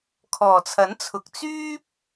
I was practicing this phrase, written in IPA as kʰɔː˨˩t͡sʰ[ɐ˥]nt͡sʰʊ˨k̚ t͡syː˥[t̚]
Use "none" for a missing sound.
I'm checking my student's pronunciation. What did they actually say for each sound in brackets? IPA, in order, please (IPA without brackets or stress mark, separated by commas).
ɐ˨˥, p̚